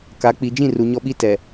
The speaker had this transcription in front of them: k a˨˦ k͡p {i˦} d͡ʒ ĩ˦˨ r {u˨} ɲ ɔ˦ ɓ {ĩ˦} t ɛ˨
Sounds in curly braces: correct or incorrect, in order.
incorrect, correct, incorrect

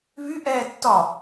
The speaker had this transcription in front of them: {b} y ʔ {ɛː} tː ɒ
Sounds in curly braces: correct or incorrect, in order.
incorrect, correct

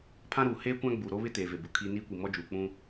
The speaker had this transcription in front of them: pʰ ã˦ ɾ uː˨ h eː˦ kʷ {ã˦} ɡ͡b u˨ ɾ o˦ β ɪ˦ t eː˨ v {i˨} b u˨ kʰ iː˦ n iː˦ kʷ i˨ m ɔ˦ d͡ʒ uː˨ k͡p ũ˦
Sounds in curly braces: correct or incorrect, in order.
correct, incorrect

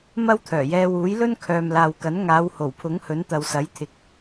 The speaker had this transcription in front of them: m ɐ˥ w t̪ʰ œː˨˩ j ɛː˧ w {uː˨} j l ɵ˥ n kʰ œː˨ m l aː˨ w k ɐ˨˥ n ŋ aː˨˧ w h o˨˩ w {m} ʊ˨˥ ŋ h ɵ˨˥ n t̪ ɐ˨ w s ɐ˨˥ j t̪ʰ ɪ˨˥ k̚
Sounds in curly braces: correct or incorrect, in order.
incorrect, incorrect

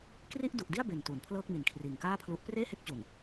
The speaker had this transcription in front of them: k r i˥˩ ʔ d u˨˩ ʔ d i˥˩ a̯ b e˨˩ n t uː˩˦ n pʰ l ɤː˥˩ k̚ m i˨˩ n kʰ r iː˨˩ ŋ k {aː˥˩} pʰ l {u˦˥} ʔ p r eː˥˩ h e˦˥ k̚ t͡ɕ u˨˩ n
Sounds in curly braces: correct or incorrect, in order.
correct, correct

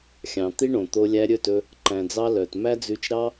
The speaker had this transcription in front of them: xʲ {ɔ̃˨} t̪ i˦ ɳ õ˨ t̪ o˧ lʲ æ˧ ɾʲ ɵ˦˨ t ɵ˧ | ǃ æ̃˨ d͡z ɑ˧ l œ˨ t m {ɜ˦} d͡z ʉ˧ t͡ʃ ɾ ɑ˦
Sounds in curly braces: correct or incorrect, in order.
incorrect, incorrect

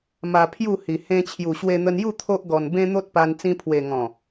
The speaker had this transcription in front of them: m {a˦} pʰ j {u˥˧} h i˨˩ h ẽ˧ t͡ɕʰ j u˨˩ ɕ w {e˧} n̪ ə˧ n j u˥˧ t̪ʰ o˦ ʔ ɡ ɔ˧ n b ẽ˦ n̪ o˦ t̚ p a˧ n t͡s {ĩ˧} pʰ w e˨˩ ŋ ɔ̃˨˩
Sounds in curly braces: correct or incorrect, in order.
incorrect, correct, correct, correct

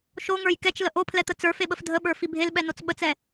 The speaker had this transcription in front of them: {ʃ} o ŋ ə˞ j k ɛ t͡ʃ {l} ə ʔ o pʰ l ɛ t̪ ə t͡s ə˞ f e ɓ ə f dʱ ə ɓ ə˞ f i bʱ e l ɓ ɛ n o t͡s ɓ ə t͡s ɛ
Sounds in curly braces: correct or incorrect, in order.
correct, correct

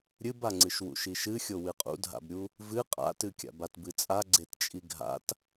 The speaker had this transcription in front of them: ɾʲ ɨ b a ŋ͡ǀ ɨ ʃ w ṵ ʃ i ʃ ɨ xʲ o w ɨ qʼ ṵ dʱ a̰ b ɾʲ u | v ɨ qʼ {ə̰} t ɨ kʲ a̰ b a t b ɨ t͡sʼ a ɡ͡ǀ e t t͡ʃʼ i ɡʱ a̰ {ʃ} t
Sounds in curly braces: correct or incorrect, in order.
incorrect, incorrect

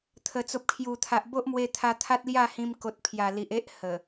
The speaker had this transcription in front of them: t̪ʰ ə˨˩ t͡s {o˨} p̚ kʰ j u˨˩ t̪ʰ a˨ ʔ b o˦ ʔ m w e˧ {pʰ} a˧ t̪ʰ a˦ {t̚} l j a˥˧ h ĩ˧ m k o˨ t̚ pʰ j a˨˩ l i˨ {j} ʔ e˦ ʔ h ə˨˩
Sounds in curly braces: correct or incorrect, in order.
correct, incorrect, correct, incorrect

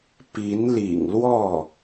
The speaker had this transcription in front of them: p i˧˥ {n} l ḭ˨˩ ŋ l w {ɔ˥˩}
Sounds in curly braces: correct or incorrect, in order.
correct, correct

